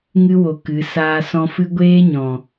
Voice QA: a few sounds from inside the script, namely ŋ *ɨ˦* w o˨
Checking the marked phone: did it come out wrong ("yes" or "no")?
no